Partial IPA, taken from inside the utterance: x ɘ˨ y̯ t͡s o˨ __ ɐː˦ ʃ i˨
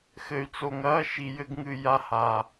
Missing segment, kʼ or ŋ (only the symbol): ŋ